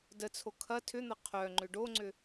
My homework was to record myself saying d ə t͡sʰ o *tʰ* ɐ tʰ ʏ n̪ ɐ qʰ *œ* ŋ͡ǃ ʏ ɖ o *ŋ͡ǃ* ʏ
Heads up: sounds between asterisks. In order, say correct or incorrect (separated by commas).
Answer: incorrect, correct, incorrect